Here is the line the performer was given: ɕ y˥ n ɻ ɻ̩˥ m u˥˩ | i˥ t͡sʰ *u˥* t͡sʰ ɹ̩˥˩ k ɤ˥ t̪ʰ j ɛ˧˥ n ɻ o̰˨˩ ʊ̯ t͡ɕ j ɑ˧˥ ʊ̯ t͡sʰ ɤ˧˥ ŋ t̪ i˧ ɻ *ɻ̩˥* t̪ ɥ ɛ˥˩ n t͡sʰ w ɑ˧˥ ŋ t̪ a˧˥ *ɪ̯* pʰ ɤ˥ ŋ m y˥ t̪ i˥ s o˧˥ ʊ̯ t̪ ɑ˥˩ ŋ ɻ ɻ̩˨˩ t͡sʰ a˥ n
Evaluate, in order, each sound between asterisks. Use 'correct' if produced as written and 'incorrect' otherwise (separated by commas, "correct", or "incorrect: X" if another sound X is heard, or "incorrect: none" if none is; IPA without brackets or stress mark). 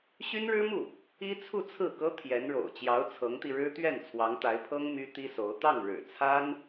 incorrect: u˥˧, correct, correct